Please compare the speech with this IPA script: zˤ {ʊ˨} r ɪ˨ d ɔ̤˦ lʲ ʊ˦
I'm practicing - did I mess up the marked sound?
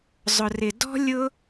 no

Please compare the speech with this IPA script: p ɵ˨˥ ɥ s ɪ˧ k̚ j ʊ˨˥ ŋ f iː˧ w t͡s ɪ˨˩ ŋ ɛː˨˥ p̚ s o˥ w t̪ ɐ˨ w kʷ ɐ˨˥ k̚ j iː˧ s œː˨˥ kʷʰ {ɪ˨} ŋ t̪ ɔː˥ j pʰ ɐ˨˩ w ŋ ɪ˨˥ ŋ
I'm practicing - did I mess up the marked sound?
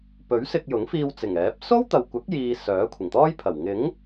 yes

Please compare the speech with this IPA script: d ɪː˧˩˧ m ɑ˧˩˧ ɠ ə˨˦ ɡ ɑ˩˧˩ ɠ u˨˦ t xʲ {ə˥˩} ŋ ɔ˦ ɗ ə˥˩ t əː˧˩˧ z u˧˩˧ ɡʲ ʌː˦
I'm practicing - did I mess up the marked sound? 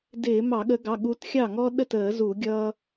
yes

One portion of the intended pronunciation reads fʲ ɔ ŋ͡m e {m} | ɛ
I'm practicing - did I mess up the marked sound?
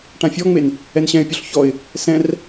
yes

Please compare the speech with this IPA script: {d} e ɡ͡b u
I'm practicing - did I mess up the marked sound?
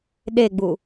yes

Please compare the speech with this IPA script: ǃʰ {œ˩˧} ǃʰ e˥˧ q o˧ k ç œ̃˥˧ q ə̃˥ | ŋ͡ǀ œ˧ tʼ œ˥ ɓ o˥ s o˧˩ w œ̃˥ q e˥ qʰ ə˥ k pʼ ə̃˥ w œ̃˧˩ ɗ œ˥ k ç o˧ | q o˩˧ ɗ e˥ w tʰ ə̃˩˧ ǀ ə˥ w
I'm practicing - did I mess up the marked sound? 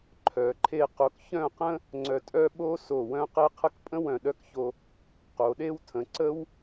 no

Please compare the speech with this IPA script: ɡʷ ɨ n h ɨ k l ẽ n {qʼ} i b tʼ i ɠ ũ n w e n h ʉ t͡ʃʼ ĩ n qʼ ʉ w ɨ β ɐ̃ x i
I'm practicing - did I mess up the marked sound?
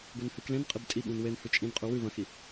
no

